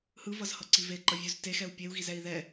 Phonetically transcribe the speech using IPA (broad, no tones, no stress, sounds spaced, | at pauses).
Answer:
h ɯ v ʌ z h ʌ ǀ i v e ǃ ʌ vʲ u z t e x ɛ u̯ pʲ e u̯ ɣ i z ɛ i̯ ð ɛ